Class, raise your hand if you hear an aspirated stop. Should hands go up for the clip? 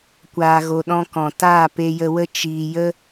no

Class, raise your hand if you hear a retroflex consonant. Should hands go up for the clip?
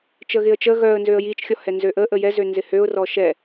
no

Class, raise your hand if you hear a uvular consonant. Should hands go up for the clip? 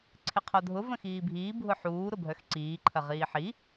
yes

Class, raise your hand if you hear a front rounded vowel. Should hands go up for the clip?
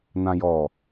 no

